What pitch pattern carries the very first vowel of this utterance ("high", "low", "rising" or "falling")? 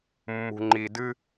low